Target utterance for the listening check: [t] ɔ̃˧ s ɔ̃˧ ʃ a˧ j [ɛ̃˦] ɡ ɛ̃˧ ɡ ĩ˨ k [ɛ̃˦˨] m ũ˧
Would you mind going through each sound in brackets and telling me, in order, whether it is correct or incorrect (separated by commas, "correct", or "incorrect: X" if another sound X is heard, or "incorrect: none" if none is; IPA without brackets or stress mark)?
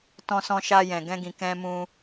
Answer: correct, incorrect: ɛ̃˨, incorrect: ɛ̃˧